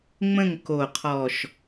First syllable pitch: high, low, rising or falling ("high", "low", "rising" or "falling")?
falling